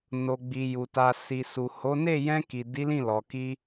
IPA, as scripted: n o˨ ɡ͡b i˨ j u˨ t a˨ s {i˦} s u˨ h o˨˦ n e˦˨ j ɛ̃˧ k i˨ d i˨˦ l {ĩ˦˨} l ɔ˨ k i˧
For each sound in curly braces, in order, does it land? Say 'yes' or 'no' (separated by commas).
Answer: no, yes